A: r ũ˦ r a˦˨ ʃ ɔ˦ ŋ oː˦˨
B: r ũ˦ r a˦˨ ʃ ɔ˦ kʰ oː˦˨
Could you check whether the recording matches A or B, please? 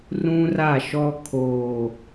B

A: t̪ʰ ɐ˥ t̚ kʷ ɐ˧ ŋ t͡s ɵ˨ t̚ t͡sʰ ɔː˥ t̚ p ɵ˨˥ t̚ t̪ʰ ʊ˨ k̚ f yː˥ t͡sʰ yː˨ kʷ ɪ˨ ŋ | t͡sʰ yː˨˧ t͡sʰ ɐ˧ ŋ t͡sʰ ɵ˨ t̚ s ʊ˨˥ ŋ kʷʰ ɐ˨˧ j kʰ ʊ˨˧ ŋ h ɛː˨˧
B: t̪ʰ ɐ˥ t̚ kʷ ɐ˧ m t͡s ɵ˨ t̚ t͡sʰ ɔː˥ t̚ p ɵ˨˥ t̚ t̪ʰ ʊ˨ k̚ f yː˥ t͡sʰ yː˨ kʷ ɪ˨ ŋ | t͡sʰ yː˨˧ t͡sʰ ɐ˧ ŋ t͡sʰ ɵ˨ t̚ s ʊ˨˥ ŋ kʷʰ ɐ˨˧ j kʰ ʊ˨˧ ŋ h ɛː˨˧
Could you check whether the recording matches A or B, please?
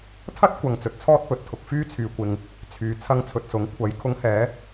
A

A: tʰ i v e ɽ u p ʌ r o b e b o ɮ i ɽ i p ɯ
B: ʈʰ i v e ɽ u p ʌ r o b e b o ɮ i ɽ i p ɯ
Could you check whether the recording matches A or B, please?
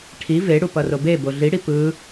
B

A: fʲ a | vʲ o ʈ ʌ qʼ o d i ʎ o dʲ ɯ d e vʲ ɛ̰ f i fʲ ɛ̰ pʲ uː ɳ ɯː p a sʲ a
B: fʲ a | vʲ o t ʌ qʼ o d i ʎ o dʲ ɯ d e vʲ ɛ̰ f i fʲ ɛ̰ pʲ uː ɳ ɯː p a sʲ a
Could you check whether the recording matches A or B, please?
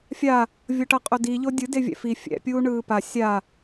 A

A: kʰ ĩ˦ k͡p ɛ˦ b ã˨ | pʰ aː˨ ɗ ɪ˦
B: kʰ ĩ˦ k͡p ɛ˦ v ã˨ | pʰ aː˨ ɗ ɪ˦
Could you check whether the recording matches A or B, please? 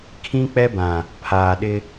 A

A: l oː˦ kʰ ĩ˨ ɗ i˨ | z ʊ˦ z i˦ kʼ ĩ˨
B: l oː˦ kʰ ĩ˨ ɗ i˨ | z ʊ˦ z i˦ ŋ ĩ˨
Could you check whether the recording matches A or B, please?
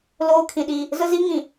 B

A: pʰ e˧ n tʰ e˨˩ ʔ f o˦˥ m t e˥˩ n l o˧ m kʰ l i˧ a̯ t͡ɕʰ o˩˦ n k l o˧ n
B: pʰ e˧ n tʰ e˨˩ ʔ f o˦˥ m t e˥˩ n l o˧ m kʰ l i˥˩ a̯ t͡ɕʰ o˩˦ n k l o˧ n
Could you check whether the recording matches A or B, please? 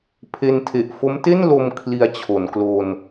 A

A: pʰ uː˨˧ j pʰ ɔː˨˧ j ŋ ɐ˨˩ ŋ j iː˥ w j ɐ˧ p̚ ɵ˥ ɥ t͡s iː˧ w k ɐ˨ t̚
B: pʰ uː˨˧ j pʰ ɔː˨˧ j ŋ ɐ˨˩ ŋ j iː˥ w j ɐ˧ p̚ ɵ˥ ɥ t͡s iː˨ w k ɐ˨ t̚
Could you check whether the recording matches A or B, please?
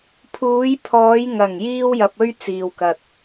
B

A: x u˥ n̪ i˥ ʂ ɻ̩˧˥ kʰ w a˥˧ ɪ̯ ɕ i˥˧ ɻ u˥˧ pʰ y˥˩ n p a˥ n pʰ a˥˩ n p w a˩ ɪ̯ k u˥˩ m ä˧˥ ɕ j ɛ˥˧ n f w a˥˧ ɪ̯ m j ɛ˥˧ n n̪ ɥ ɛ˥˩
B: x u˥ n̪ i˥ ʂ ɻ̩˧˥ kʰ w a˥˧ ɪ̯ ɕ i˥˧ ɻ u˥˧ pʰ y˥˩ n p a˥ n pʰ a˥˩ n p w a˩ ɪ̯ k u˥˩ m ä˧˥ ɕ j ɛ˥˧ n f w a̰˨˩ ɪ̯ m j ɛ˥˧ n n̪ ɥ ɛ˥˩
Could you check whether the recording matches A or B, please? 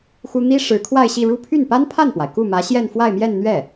A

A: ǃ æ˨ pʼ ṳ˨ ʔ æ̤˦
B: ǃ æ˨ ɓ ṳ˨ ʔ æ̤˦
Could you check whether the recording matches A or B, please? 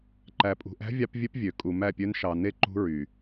A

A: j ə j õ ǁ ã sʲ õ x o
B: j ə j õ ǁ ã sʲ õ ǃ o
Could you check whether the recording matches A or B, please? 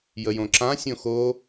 A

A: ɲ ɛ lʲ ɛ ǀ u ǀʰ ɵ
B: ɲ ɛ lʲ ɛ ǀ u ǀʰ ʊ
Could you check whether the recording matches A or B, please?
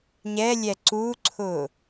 B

